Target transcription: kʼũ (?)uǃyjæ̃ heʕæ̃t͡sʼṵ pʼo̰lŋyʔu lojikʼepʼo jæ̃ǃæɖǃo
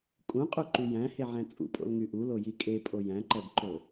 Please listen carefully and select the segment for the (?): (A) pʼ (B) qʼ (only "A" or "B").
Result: B